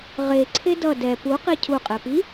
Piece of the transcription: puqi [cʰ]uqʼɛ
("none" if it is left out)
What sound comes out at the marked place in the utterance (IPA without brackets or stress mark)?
cʰ